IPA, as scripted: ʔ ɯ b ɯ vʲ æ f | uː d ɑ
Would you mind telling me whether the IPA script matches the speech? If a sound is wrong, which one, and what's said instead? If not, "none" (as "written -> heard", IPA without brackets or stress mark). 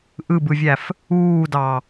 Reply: none